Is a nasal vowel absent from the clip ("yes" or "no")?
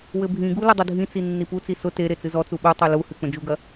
no